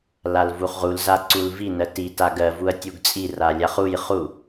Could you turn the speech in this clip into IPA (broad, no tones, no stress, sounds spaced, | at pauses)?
l a l v u χ ʁ u l z a ǀ u l v i n ɜ t i t a ɡ ɜ v u ɐ̯ tʲ u ɡ t͡sʼ i r a lʲ a χ u j χ u